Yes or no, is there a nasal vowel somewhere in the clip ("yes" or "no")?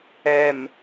no